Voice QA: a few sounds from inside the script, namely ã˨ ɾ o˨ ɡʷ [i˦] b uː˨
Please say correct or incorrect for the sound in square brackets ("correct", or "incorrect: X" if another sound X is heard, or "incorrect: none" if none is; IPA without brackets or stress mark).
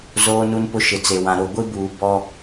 correct